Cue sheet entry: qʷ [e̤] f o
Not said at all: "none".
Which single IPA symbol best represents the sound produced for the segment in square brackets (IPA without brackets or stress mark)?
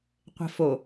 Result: e̤